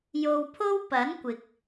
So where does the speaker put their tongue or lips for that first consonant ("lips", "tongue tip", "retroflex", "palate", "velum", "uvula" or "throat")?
palate